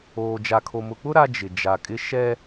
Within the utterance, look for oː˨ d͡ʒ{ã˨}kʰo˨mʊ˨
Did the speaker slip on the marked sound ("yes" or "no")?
yes